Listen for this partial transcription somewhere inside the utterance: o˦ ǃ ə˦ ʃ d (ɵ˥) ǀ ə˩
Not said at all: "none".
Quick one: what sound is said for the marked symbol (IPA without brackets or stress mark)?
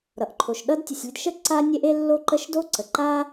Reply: o˥